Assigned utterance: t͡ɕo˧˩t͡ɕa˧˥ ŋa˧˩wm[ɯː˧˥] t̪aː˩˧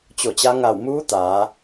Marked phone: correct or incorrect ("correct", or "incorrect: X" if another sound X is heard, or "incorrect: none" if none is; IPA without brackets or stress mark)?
incorrect: uː˧˥